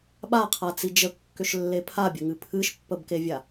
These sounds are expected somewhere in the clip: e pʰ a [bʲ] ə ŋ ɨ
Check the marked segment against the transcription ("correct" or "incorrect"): correct